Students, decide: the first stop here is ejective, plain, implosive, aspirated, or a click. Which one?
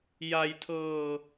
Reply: aspirated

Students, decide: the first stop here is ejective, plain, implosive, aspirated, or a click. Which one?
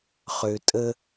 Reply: ejective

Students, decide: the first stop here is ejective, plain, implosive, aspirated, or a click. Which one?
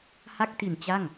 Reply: plain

